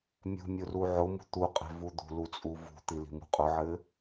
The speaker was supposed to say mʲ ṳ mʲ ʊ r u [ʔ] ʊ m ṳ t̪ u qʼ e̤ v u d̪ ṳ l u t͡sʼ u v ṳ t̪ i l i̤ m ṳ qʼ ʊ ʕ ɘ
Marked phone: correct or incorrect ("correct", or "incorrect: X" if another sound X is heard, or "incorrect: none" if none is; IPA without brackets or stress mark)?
incorrect: ʕ